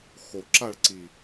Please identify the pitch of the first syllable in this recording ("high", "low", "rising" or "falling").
low